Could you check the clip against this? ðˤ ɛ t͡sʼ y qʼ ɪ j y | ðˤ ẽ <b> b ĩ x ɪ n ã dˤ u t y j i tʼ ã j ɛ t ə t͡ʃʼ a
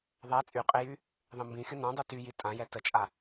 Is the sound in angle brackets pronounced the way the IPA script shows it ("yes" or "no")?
no